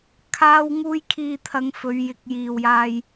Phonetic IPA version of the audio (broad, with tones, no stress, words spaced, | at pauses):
kʰaː˧wŋuː˧jkʰiː˨t̪ʰɐ˨˧ŋ fɵ˨˧ɥjɪ˨˥k̚jiː˨wjaː˧j